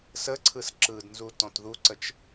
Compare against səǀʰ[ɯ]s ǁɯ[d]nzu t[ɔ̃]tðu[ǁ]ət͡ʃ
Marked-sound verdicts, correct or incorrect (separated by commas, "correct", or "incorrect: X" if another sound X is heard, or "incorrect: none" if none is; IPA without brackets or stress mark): correct, correct, correct, incorrect: ǀ